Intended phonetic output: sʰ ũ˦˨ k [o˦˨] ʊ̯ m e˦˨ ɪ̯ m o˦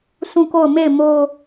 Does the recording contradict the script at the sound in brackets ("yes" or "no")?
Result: no